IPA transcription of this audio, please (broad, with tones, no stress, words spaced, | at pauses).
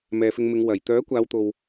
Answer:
mɛː˨fɪ˧ŋmɪ˨˧ŋ wɐ˨˩j t̪œː˨˥kʷaː˨˧wt̪o˨w